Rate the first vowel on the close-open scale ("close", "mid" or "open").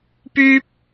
close